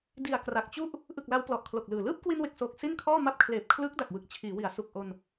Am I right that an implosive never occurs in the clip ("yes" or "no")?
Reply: yes